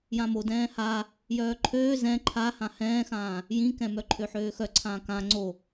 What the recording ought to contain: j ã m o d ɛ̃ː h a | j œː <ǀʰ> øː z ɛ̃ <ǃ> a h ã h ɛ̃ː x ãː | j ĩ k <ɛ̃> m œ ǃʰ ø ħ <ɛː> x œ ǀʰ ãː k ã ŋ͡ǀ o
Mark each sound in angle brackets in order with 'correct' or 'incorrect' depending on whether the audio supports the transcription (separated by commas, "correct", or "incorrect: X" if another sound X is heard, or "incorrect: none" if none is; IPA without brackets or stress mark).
incorrect: ǃʰ, incorrect: ǃʰ, correct, incorrect: øː